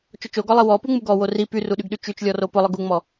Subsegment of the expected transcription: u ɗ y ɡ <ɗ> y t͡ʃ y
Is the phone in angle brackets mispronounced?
no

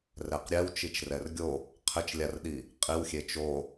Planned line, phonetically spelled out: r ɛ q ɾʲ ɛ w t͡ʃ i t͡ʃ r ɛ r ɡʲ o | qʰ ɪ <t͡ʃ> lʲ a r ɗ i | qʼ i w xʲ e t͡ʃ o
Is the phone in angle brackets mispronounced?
no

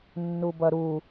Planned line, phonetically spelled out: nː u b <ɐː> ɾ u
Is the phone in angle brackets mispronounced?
yes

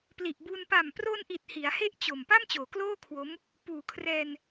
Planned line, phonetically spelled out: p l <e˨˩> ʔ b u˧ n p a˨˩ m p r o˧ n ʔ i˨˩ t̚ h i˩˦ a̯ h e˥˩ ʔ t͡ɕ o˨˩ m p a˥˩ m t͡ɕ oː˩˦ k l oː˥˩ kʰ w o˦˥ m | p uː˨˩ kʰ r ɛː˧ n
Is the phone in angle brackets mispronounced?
yes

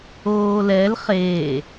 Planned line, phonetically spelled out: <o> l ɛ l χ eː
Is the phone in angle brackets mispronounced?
yes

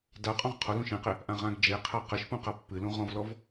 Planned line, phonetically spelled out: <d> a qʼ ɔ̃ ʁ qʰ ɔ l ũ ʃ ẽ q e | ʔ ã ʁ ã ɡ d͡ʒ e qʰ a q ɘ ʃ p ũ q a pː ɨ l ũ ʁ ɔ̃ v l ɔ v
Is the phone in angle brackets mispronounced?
no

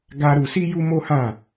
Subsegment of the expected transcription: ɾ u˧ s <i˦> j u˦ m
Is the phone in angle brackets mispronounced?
no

